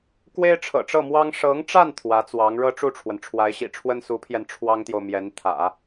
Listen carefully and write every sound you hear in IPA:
kwe˥ɪ̯ʈ͡ʂʰɤ̰˨˩ʈ͡ʂɤ˥˩mwɑ˥ŋ ʂɤ˧˥ŋʈ͡ʂa˥˩n t̪ʰwä˧˥t͡swɑ˧˥ŋ ɻɤ˥ʈ͡ʂu˥˩ʈ͡ʂʰwə˩n ʈ͡ʂʰwa˧˥ɪ̯ɕḭ˨˩ʈ͡ʂʰwə˥n su˧˥pʰjɛ˧n ʈ͡ʂʰwɑ˥ŋt̪jo˨ʊ̯mjɛ˧˥nt̪ʰä̰˨˩˦

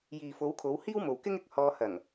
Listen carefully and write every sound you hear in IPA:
jiː˨fo˨˧wkʰo˨˧w hiː˥wmo˨w kɪ˥ŋɪ˨k̚hɔː˧hɐ˨˩ŋ

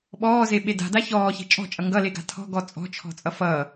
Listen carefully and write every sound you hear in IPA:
ɓɔːzeɓe da̤da çɔːçe̤ t͡ʃʼɔ̤t͡ʃʼʌ ŋɡʌleɡa̤ tʰɔ̤ɡɔ t͡sʼɔ̤t͡ʃʰɔ̤t͡sʼʌ fʌː

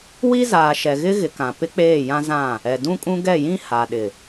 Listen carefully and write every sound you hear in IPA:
wi˦zaː˨ʃɛ˨ɣɪ˦ ɣɪ˨kã˨ pɪ˦k͡peː˦˨jã˦ zã˦˨ | ɛ˨dũ˦kʼũ˦ ɡɛ˦˨jĩ˦ ha˨ ɗɪ˨

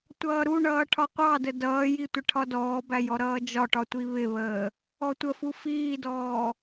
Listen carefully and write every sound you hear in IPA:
tʷʌːɾuɳʌː ʈʰɒqʷɑdə dʌːji tʷɪʈʰɒdɔːbæ jɔɾʌːd͡ʒɒʈɒ tʷiβɪβəː | ɔtʷəfu fiːdɔː

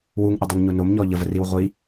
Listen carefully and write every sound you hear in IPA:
wuŋʔədˤoŋɲo nomɲɔ ʎəvəriw ʁʷi

